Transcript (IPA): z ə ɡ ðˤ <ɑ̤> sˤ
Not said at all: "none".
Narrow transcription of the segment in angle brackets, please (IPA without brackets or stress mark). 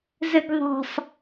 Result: ɑ̤